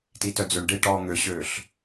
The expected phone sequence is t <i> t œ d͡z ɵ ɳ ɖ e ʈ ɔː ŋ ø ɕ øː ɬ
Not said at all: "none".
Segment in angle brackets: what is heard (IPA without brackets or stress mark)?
i